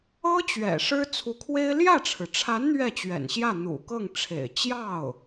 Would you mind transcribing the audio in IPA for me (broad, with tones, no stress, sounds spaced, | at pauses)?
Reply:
ɤ˥ t͡ɕ ɥ ɛ̰˨˩ ʂ ɻ̩˥ t͡sʰ u˧˥ kʰ w e˥ ɪ̯ l j ä˥˩ ʈ͡ʂʰ ɻ̩˩ ʈ͡ʂʰ a˧˥ n n̪ ɥ ɛ˥˩ t͡ɕ ɥ ɛ̰˨˩ n ɕ j ä˥˩ n̪ ṵ˨˩ k ɤ˥˩ ŋ ʈ͡ʂʰ ḛ˨˩ ɪ̯ t͡ɕ j ɑ˥˩ ʊ̯